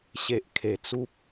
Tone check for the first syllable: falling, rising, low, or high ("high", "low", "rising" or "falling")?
low